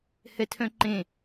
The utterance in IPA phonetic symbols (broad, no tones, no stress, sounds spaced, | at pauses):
h ɛ tʰ œ̃ ǃ ẽ